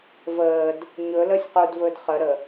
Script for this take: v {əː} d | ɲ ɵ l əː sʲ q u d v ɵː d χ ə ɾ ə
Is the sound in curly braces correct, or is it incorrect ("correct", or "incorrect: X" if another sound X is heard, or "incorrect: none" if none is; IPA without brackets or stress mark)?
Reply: correct